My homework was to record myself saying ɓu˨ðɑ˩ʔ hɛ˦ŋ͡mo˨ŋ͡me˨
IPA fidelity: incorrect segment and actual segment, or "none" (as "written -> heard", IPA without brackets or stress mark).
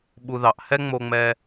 e˨ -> ɛ˨